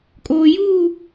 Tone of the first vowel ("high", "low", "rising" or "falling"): low